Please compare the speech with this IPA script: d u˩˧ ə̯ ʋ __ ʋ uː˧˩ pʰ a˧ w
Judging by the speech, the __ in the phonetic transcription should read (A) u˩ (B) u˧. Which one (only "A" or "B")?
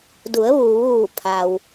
A